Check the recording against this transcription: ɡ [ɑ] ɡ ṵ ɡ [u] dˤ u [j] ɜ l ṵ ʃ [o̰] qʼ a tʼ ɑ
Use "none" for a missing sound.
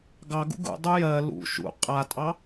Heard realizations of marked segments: ɑ, ṵ, j, ṵ

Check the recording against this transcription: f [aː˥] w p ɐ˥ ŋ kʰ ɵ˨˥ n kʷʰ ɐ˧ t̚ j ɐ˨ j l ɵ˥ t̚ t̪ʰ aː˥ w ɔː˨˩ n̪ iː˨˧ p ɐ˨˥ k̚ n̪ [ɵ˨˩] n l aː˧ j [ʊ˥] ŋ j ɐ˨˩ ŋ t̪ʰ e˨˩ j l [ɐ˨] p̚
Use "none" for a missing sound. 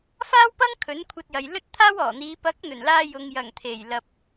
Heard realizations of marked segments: aː˥, ɵ˨˩, ʊ˨, ɐ˨

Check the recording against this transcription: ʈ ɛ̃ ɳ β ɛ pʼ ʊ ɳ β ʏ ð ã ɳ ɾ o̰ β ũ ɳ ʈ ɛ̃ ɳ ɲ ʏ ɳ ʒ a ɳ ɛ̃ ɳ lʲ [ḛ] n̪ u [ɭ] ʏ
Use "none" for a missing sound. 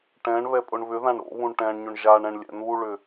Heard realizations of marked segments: ɛ̰, ɭ

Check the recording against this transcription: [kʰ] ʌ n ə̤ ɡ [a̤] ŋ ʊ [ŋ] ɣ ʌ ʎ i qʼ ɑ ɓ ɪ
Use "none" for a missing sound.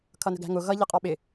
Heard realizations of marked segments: kʰ, æ̤, none

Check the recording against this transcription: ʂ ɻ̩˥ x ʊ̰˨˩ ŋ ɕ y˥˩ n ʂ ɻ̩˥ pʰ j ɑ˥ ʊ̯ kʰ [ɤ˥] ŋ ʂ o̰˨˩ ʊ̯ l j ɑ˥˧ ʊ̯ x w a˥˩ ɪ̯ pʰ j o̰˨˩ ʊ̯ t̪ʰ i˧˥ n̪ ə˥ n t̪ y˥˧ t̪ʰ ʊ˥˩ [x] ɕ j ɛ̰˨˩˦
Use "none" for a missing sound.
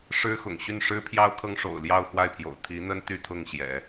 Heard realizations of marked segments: ɤ˥, ŋ

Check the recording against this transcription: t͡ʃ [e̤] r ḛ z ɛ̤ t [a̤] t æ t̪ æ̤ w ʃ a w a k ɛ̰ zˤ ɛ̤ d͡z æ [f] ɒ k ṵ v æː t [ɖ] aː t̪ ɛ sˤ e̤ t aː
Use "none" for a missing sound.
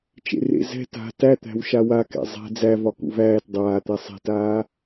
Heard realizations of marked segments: ḛ, a̤, v, dˤ

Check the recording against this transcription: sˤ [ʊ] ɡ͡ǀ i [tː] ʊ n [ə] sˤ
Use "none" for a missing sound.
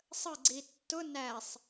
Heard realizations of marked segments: ə, tː, æ

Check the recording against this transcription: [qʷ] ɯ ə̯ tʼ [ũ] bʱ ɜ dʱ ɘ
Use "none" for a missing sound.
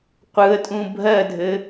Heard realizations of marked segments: qʷ, ũ

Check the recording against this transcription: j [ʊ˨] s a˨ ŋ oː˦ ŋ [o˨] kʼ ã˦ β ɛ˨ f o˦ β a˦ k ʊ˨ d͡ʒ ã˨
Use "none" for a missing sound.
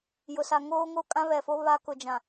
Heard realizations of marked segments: ʊ˨, o˦

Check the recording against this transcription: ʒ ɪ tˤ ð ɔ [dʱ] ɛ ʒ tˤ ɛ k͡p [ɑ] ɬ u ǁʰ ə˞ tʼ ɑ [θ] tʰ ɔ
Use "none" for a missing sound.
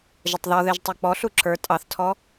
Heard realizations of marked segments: ð, ɔ, θ

